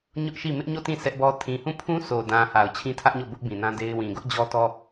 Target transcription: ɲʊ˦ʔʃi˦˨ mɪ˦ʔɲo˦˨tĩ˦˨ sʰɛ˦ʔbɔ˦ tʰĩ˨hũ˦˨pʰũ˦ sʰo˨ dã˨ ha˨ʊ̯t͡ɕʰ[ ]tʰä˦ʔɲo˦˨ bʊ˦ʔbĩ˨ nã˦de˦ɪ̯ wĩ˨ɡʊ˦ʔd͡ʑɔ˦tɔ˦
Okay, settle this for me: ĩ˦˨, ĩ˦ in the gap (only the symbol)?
ĩ˦